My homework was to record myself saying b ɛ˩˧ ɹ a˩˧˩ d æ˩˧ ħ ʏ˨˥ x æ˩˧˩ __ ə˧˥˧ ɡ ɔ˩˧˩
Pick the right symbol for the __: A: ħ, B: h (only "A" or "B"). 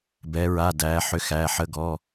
A